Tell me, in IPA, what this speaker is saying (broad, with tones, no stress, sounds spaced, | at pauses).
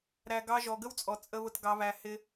ɾ æ˨ ɡ ɑ˧ ʒ ɔ˨ ɡ ə˦ w t͡sʼ ɔ˨ t͡sʼ ə˧ β ʊ˧ t ɡ ɑ˧ β æ˧ h ɪ˦